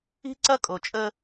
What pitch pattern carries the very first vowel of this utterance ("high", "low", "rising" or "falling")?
high